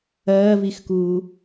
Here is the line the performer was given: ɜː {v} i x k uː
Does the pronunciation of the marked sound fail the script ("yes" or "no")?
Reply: no